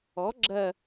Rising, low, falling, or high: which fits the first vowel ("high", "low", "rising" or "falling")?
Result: rising